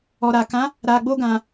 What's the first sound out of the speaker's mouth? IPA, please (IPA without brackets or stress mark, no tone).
ɔ